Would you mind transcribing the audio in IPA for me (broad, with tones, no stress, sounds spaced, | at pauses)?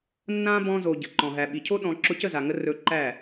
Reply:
nː ã˦ b ɔ̃˧ z o˨ ɟ ə˨ ǃ ɔ̃˨ ɦ æ˨ ɓ i˨ cʰ o˦ ɗ ɔ̃˧ ǁ ʊ˧ c ə˦˨ z a˨ ŋ ə˧ r ɵ˧ ǃ æ˦˨